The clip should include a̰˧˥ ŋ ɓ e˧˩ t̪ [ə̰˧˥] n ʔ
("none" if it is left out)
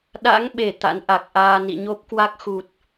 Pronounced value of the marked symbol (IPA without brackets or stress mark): a̰˧˥